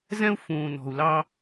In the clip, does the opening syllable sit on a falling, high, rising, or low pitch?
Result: high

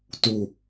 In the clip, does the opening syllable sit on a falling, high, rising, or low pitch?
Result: low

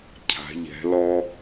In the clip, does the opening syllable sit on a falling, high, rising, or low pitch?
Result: rising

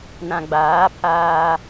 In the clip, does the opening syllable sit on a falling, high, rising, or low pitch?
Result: low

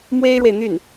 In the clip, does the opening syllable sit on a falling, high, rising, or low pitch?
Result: high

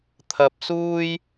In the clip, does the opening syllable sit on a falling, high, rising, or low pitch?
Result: high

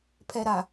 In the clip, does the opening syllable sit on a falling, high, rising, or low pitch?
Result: low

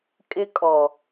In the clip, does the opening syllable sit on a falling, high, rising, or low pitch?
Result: high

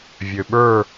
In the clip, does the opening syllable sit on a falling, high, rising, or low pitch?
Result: low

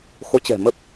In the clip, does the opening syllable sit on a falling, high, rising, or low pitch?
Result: rising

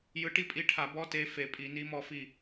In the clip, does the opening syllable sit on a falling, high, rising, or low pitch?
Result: rising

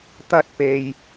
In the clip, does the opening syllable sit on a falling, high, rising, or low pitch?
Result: high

